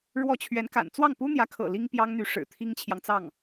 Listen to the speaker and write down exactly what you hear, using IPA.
ɻ w ɔ˥˩ t͡ɕʰ ɥ ɛ˧˥ n k a̰˨˩ n t͡s w ɑ˥˩ ŋ p u˥ n̪ j ä˧˥ kʰ ɤ̰˨˩ l i˥ ŋ p j ɑ˥ ŋ n̪ y˧˥ ʂ ɻ̩˨˩ t̪ʰ i˥ ŋ t͡ɕʰ j ɑ˨ ŋ t͡s ɑ˥˩ ŋ

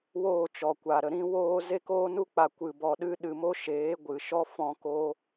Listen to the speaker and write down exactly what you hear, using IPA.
w oː˦˨ t͡ʃ ɔ˨ kʷ a˨ ɾ ə˧ ɾ ĩ˧ w oː˧ z e˧ k oː˧ n u˧ k͡p a˨ kʷ ɨ˨ b ɔ˨ ɗ ɨ˧ ɗ ɨ˨ m o˧ ʃ eː˨˦ ɡʷ ɨ˨ ʃ ɔ˦ f ɔ̃˧ k o˧

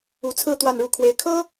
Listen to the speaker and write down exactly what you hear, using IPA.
u˧˥ t͡sʰ ɹ̩˥˧ t̪ w a˥˧ n ɻ u˥˩ kʰ w e˥ ɪ̯ kʰ ɤ˥

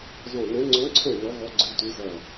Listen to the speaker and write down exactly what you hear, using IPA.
z ɔ̃˦˨ n ɛ̃˧˥ ŋ͡ǀ ɔ̃˧˥ ǀʰ ɛ̃˦˨ n ɔ˧˥ ɣ ɔ˧˥ ɡ͡ǀ ɨ˧˥ tʷ ɨ˧˥ z ɐ˦˨

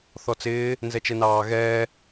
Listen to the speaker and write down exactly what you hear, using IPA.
θ ɔ t͡s ɪː | n z ɛ t͡ʃ ɛ n ɑː ɣ ɛː

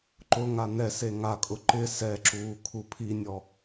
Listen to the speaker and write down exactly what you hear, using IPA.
ǃ ʊ ŋ a n ɛ s e ŋ a kʼ ʊ ǃ ɪ s ɛ ǁ uː kʰ u pʰ i nʲ ɔ

